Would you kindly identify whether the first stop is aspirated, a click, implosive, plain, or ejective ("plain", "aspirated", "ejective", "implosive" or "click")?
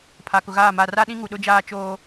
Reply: aspirated